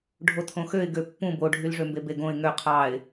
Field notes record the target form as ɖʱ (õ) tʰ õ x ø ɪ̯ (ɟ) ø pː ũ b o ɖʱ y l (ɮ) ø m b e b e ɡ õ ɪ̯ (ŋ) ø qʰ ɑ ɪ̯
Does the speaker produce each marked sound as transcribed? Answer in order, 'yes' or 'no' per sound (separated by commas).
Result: no, no, no, yes